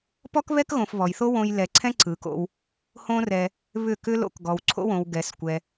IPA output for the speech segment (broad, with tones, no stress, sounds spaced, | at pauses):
p ɔ˦ k β ɛ˦ k ɣ õ˨ f β ɔ˨ j θ o˦ w õ˧ j l ɛ˨ ǀʰ ɛ̃˦ ǀ ɯ˨˦ k o̰˦ w | h õ˦ r ɛ˧ | β ʏ˦˨ k ʏ˦ l o̰˧ k ɡ ɔ˨ w ǀʰ o̰˦ w õ˨ w ɡ ɛ˨˦ s kʷ ɛ˧